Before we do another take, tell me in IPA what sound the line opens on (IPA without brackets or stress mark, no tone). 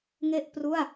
ŋ